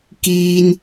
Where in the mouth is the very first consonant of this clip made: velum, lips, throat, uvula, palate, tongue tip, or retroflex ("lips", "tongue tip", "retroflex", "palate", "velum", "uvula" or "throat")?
velum